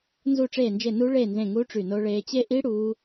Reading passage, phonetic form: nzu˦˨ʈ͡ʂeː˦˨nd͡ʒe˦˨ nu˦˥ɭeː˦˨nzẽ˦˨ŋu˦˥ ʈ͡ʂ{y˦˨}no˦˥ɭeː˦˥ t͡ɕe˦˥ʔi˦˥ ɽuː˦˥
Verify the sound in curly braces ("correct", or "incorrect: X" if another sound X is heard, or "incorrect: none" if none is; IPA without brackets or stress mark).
correct